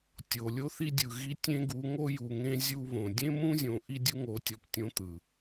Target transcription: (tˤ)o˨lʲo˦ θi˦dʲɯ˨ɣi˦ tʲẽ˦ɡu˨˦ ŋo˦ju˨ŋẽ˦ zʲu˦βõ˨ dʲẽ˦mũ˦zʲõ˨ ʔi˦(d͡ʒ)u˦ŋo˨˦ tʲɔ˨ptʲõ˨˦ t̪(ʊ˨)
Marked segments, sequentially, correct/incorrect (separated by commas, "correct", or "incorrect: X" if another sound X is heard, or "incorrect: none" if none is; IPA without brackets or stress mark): incorrect: tʲ, incorrect: dʲ, incorrect: ɯ˨